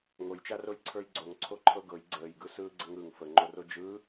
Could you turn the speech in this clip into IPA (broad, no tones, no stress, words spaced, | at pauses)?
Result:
ŋojt͡ʃaroj ǀʰə˞jɡ͡ǀoŋ ǀʰoǃʰɤɡɤj ɡ͡ǀəːjɡɯ sɯːɡ͡ǀəŋɯŋ fəŋ͡ǃoro d͡ʒɯ